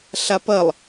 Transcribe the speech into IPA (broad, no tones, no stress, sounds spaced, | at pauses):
ɬ a p ɐ lˠ